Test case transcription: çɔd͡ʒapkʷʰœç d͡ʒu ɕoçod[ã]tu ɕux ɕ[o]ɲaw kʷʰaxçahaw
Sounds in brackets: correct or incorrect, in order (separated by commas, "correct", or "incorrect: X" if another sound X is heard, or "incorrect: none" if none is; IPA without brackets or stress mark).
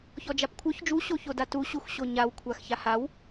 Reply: incorrect: a, correct